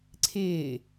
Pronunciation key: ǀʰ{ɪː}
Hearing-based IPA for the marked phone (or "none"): ɪː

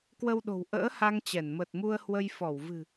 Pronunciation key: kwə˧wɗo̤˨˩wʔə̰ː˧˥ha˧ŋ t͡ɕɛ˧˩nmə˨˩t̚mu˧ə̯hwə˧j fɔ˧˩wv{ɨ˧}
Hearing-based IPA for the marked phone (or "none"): ɨ̤˨˩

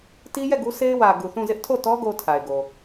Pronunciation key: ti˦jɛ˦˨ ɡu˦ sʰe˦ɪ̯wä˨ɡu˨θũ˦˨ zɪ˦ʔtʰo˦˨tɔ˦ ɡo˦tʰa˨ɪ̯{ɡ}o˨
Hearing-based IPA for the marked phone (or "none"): ɡ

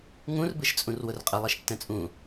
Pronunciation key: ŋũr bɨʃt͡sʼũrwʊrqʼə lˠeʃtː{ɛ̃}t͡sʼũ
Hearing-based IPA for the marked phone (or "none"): ɛ̃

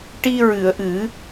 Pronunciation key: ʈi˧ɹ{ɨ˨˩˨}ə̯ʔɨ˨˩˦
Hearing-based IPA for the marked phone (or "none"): ɨ˨˩˨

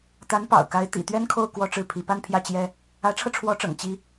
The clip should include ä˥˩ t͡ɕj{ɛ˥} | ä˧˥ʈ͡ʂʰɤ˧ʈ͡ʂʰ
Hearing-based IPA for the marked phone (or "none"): ɛ˥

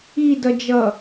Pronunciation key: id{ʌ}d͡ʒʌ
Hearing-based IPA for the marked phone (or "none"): ʌ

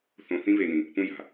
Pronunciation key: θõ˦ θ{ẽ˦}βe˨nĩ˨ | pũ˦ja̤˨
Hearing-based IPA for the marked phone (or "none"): ĩ˦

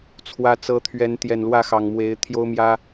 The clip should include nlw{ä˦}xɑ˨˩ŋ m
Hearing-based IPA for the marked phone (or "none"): ä˥˨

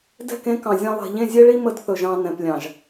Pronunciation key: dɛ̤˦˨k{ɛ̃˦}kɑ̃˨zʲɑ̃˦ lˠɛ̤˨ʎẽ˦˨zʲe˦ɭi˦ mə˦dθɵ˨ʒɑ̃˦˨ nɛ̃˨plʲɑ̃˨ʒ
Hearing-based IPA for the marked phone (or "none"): ẽ˦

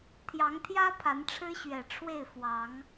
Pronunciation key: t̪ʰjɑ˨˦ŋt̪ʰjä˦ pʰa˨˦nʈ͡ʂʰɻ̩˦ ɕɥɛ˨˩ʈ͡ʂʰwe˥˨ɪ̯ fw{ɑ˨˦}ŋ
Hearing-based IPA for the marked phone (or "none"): ɑ˨˦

